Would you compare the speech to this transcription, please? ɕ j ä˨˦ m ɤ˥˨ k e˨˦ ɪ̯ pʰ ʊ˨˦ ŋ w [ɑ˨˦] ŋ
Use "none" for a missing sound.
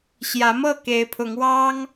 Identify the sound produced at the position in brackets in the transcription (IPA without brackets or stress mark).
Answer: ɑ˦